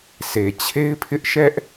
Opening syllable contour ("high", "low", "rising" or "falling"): low